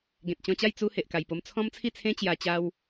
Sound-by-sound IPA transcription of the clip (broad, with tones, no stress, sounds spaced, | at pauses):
ɡ ẽ˨ t̚ t͡ɕ ɔ̃˧ t͡ɕ a˥˧ j t͡s u˦ h e˨ ʔ k a˨˩ j p o˧ m t͡sʰ ɔ̃˦ m t͡sʰ i˥˧ t͡sʰ ẽ˦ t͡ɕ j a˧ t͡ɕ a˦ w